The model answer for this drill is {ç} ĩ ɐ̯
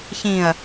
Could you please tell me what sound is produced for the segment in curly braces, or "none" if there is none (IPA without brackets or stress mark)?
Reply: ç